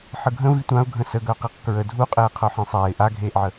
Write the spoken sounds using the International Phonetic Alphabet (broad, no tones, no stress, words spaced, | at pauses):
ħəɡʱə̃ vitʷãʊ̯ ɡʱə̃səɡœ qiqkɹə dʱuqʼeː qʰœħẽsˤɛːɪ̯ ʔaɡʱeːʔʕə